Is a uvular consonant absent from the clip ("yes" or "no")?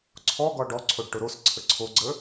yes